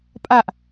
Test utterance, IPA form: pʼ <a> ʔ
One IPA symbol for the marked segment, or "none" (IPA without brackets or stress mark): a